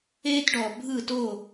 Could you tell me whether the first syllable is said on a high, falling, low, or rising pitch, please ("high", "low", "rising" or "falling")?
high